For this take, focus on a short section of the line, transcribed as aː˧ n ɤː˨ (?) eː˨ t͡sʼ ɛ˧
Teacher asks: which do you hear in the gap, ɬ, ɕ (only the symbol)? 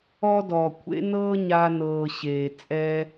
ɕ